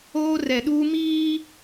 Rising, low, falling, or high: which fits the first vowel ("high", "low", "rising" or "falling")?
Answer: high